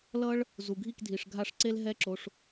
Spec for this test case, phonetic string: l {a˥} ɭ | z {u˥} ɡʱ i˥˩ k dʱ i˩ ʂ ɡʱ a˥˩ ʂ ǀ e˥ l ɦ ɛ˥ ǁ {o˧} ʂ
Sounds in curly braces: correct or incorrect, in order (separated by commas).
incorrect, incorrect, correct